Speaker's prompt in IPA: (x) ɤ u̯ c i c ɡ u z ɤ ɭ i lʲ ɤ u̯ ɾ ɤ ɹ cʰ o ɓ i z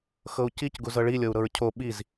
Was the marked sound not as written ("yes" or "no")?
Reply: no